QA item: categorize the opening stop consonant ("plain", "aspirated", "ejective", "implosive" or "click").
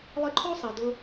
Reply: click